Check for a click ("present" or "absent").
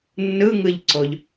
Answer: present